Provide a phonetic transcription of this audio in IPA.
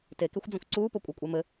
tekexʷ d͡zõkǀuːpo kʷʼekʷʼemɘ

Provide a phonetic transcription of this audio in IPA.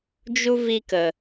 d͡ʒu˧ vi˧kə˨

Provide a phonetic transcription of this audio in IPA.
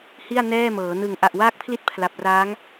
hi˥˩a̯nɛː˥˩mɤː˩˦ nɯ˨˩ŋ ʔa˨˩ʔwaː˦˥k̚pʰli˦˥t̚ pʰla˨˩p̚raː˦˥ŋ

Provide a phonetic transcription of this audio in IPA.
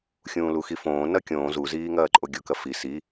xʲũːluxifõː nɐkʲõː zuziːŋɐːǃʼo ɡʲokɐfi si

